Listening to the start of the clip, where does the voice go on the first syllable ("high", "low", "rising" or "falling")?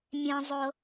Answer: high